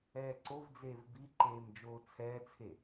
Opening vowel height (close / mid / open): mid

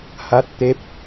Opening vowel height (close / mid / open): open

